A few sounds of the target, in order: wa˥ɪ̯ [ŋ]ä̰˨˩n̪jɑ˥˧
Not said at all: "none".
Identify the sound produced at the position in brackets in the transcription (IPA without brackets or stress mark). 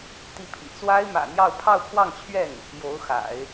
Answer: m